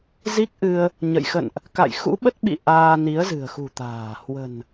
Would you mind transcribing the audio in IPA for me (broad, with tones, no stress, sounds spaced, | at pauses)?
z i˦˥ k̚ ʔ ɨ˧ ə̯ | ɲ ə̰˧˨ j x ə̰˧˨ n ʔ | k a̰˧˨ j x ṵ˧˥ ɓ ə˦˥ t̚ ɓ ḭ˧˨ ʔ aː˧ n i˨˦ ə̯ z ɨ̤˨˩ ə̯ x ṳ˨˩ t̪ a̤ː˨˩ h w ə̤˨˩ n